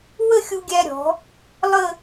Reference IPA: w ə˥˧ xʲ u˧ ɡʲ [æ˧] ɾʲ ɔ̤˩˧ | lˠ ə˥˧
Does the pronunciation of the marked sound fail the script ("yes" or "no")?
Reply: no